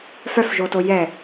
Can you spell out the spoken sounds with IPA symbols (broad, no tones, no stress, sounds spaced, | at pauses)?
f œ f ʒ o t o j ɛ